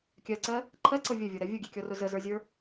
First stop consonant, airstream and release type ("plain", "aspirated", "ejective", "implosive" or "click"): plain